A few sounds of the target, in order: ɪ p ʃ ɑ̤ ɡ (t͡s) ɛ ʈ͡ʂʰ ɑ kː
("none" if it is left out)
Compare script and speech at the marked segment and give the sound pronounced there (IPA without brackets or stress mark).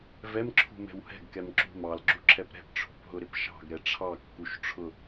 ɾ